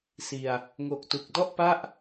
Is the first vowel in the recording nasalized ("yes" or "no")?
no